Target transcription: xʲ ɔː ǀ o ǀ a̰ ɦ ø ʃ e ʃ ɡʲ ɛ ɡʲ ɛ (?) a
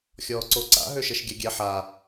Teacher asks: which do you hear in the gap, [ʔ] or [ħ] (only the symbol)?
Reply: ħ